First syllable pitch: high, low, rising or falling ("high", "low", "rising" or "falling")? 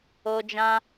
high